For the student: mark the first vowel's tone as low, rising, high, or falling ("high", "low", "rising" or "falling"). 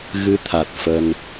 rising